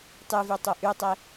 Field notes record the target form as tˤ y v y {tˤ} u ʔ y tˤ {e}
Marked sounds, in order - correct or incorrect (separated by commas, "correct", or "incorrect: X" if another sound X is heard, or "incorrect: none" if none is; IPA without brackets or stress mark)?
correct, correct